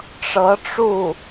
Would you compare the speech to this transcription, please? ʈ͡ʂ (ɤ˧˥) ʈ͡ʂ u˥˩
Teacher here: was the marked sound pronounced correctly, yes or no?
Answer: yes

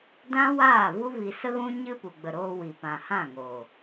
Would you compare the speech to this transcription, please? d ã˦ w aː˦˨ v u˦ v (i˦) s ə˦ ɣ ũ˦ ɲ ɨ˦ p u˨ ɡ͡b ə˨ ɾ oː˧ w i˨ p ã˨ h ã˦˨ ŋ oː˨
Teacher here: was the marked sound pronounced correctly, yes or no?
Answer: no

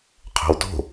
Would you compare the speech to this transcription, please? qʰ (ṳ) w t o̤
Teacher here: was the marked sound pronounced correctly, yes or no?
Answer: no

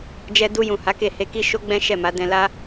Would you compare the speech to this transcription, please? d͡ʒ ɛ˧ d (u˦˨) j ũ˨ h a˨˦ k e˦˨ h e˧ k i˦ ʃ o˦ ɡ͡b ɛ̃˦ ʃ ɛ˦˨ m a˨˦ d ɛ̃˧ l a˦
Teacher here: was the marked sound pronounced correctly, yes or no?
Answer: no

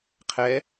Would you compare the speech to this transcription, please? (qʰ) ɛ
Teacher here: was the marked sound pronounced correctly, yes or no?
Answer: yes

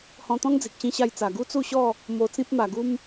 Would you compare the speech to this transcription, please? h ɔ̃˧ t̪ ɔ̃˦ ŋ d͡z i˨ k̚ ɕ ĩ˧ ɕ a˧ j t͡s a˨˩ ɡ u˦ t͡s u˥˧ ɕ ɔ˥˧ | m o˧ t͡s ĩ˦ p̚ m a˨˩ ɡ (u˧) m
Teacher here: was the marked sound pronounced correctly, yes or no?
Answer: no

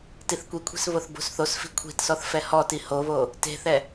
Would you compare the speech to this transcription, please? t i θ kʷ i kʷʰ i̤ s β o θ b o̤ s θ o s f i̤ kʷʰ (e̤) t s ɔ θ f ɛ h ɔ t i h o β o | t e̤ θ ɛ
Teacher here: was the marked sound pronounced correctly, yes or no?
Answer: no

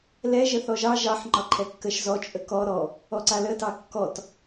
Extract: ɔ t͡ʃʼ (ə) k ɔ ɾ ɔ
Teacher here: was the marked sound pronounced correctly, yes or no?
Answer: yes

